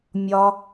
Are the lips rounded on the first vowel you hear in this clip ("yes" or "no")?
yes